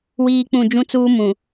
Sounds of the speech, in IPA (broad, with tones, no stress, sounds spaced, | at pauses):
w iː˦ k͡p ũ˦˨ d͡ʒ ũ˦ t͡s uː˦ m ũ˨